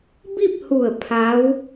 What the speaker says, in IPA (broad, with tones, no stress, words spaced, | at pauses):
bi˥˨p̚hu˧˩ə̯ pʰa˧˥w